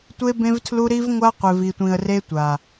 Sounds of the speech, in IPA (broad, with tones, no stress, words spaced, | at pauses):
tʷe˦bẽ˦vtʰlu˦ ɾi˦vŋʷa˦ qʷe˨vi˨tʷĩ˨ə̯re˦ tʷa˨